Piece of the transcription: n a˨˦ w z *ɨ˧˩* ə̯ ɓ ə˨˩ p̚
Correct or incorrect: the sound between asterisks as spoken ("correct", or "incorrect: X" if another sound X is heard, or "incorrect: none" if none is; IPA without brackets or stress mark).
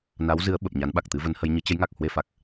incorrect: ɨ˨˦